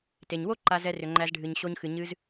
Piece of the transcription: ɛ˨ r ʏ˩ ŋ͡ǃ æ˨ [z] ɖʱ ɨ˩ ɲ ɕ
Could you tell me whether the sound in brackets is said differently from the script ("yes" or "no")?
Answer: no